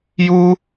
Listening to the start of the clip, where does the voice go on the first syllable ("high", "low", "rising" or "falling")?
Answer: high